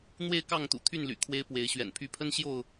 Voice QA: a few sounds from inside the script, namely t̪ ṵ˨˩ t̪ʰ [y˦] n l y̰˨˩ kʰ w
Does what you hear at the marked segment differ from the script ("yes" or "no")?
yes